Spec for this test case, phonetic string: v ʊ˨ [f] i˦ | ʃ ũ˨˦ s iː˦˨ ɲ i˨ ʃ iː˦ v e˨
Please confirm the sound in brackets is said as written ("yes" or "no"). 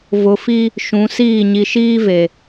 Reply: yes